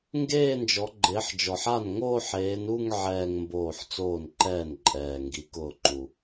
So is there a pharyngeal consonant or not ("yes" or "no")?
yes